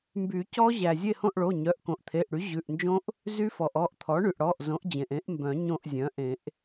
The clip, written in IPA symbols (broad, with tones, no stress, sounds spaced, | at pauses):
m b y˨˩˦ c ɔ˦˥ ʑ æ˩ zʲ e˦˨ h õ˦˨ ʔ ɭ o˩˧˩ ɲ œ˩˧˩ ʔ k õ˩ ʔ t̪ʰ e˩˧˩ ʔ ɽ y˩˥ ʑ ʉ˩˧˩ ʔ n d͡ʒ õ˦˥ ʔ | z y˦˥ f ɔ˩ ʔ ɔ˦˨ ʔ t̪ʰ ɔ˩˥ ɳ y˩ ʔ ɽ ɔ˩˧˩ ʔ z õ˩˥ ʔ d͡ʑ ẽ˩ ʔ ẽ˩˥ ʔ m b œ̃˨˩˦ ɲ õ˦˨ ʔ zʲ œ̃˩˥ ʔ ẽ˨˩˦ ʔ